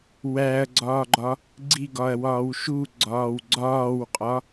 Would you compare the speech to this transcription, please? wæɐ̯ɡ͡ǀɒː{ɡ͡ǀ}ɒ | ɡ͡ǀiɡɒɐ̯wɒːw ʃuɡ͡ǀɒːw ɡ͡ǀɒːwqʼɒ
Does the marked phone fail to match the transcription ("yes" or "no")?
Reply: yes